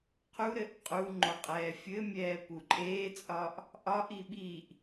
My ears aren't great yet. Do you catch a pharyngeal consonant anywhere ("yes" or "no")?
no